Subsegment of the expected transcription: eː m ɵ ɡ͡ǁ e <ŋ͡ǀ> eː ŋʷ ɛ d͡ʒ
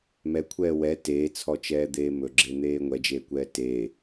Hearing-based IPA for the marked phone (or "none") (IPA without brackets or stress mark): n̪